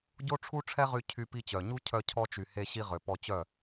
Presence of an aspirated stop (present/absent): present